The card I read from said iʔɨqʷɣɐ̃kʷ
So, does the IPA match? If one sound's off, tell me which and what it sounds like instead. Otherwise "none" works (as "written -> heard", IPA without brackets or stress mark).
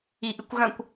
qʷ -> kʷ